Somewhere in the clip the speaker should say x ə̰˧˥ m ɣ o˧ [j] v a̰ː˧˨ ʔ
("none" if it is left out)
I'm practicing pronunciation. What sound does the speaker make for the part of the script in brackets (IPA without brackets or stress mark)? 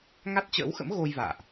j